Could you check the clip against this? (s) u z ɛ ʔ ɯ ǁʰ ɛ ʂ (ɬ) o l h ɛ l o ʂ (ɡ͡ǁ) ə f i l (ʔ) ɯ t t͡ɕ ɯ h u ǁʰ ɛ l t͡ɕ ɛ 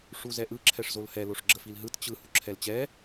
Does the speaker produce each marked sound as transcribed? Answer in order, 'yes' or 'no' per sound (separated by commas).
no, no, yes, no